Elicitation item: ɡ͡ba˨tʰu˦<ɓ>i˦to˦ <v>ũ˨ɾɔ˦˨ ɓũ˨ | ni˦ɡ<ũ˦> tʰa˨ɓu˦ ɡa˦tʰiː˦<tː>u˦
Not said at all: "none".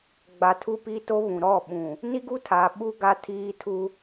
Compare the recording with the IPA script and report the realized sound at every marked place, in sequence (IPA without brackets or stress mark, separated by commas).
p, β, u˦, tʰ